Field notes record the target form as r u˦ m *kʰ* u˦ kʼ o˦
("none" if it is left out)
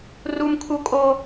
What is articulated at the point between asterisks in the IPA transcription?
kʰ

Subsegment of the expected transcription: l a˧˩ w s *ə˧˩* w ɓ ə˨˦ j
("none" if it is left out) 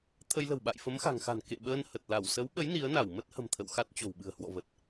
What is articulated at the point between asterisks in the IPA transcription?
ə˨˦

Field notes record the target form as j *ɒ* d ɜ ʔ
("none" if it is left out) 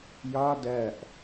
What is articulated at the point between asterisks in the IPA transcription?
ɒ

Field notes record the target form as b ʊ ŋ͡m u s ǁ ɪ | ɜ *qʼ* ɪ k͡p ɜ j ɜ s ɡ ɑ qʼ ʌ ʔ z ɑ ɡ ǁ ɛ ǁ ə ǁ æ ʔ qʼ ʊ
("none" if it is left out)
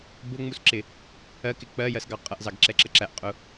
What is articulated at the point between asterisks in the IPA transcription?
k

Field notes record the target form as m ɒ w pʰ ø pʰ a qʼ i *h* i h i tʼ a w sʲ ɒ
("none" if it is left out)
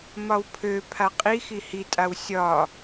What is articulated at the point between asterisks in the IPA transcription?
x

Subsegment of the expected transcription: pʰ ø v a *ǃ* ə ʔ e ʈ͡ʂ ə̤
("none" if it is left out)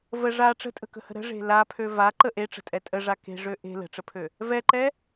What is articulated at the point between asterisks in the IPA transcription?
ǃ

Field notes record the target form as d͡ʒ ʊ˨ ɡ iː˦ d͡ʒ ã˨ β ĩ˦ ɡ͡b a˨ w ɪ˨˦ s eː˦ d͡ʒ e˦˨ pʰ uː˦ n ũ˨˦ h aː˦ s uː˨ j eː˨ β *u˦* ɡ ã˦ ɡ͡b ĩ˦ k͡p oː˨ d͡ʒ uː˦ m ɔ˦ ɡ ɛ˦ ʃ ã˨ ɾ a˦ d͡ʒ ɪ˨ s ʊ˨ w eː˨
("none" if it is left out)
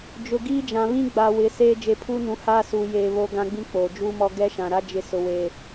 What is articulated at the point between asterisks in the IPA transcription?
o˦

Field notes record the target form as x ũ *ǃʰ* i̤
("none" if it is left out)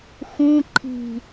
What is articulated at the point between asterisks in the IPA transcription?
ǃʰ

